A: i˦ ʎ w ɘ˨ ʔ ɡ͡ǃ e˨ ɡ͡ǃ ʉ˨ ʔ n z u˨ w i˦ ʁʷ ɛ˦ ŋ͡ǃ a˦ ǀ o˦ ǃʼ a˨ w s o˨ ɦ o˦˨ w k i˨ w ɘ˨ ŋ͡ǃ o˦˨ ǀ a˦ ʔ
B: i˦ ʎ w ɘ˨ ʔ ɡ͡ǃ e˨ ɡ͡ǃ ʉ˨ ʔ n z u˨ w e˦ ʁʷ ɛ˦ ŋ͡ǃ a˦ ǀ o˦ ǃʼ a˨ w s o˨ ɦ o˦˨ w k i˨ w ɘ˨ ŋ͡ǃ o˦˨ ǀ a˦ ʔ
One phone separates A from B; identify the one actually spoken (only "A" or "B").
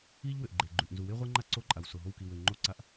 B